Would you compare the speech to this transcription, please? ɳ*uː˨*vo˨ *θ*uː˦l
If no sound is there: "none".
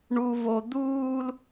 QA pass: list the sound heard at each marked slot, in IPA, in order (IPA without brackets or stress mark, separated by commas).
u˨, d̪